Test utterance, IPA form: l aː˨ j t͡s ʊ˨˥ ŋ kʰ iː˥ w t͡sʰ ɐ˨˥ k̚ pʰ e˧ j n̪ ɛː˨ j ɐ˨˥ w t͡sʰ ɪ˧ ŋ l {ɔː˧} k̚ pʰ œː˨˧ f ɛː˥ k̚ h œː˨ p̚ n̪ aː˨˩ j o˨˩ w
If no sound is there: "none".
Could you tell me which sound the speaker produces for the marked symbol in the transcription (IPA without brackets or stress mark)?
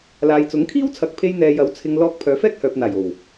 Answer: ɔː˧